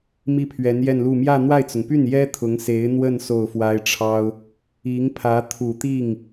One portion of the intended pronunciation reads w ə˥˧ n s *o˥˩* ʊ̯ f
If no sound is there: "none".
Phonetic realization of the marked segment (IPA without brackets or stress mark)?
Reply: o˥˩